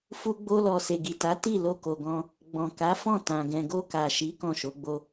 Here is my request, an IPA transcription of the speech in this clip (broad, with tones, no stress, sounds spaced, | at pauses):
f u˧ ɡ͡b o˧ l ɔ˨ s e˨ ɡ i˨ t a˨˦ t i˦˨ l o˧ k o˨ ɡ ɔ̃˧ | ɡ͡b ɔ̃˨ k a˨˦ f ɔ̃˦˨ t ã˨ ɡ ɛ̃˨ ɡ o˧ k a˨ ʃ i˨˦ k ɔ̃˦˨ ʃ o˨˦ ɡ͡b o˦